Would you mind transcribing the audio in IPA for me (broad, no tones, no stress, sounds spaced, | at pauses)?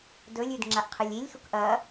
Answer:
d ɵ lʲ ʉ d ŋ͡ǁ a ʔ qʰ ɨ lʲ i lʲ x u k ʔ ɐ